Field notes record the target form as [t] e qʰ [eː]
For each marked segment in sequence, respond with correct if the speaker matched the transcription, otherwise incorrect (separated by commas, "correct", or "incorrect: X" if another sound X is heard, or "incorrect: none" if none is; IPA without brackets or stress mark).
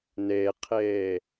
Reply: incorrect: n, correct